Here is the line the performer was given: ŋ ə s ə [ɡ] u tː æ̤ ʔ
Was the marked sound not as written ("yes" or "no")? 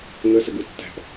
no